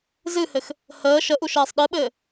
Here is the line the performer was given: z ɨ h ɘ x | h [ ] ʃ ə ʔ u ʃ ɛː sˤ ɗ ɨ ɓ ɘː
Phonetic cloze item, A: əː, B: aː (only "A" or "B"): A